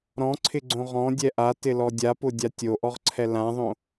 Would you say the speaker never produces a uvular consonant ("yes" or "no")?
no